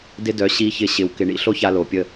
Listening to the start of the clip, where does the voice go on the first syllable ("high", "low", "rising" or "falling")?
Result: high